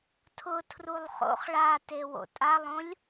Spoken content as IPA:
tʰ ʊ tʰ r u lˠ χ o̰ χ ɭ a t e w o̰ tʼ a lˠ õ lʲ

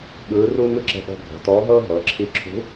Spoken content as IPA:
ɠ ɯː˧˥ r uː˥ ŋ ɯ˥ ǁ ɛ̤˧ ɠ ɔ̤˧ ɡʱ ɔ̤˩˧ t ɔː˧˥ ɦ ɤː˥ ɦ ɤː˩˧ ǁʰ i˧˥ ǁʰ ṳ˧˥

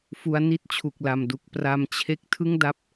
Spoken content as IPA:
f u˦˥ a̯ n i˥˩ t̚ t͡ɕʰ u˨˩ k̚ l a˨˩ m d u˨˩ k̚ p r a˧ m t͡ɕʰ e˥˩ k̚ tʰ ɯ˥˩ ŋ d a˦˥ p̚

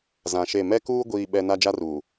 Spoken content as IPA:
z ã˨ ʃ e˦˨ m ɛ˦ k uː˦ ɡʷ iː˦ ɓ ɛ˦ n a˦ d͡ʒ a˦ r uː˨

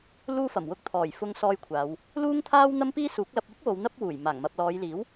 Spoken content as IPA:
l uː˥ f ɐ˨˩ m w ʊ˥ k̚ t̪ʰ ɔː˨˩ j f ʊ˧ ŋ s ɔː˧ j kʷʰ aː˨˧ w | l uː˥ ŋ t̪ʰ aː˥ w n̪ ɐ˥ m p iː˥ s uː˨˥ k̚ l ɐ˧ p̚ yː˥ p̚ w o˨˧ w n̪ ɐ˥ p̚ w uː˨˩ j m aː˨˩ ŋ m ɐ˨ p̚ l ɔː˨˧ j l iː˨˥ w

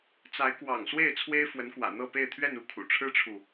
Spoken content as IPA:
t͡s a˧˥ ɪ̯ k w ɑ̰˨˩ ŋ s w e˥˩ ɪ̯ t͡sʰ w e˥ ɪ̯ f w ə˧˥ n k w ä̰˨˩ n̪ ɤ˥˧ p e˥˧ ɪ̯ t̪ʰ ɥ ɛ˥˧ n u˥˩ kʰ ṵ˨˩ ʈ͡ʂʰ ɻ̩˥ ʈ͡ʂʰ u˨

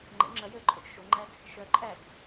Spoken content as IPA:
ŋ͡ǃ ə̰ ŋ͡ǁ ɐ j əː ǃʼ o t͡ʃ ʃ o ŋ͡ǃ æ ɡ | ʃ œ ǃʼ æ ɡ

